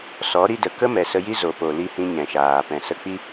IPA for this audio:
sɔ˨˦ɾi˦də˨ kə˦mɛ˨ sə˧ji˦ zo˨po˨ li˦hĩ˦ ɲɛ̃˨ʃaː˨ pɛ̃˨sə˧k͡pi˦

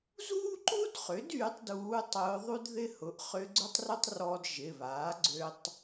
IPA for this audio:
zuː˥ǃu˥dχʏ˩˥d yː˧˥tˤduː˧˥tˤʊː˧˥ðˤu˥d ðɪ˥ hʊ˩˧˩ʔχʏ˧˥ɡ͡ǀʊ˥tˤrʊ˥tˤ rɔ˧d ʒɪ˩˧˩βaː˩˥ɡ͡ǀø˧tˤ

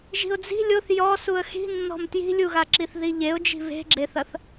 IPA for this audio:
ʒi̤ʊ̯d͡zi̤ lʲoθ jɔ suə̯xi̤nːɔ̤m tji̤lʲuɣaǁiθ ðiʎeʊ̯d͡ʒi̤ βe̤ɡ͡ǁeθɐθ

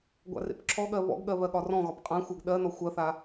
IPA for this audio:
ɡʷa̰rḛpǁʰɔɠɜ βɔ̰ɡɠɜ βɜɠɒrɔ̃ɣɒp qʼãxʷɜɡ ɗɜnɔ xʷɜθa

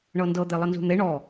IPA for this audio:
ɳɤndɤ d̪elˠənzṳn̪e ɳɔ

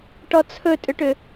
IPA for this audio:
ʈɔt͡sʰɵtʼʏʈʏ

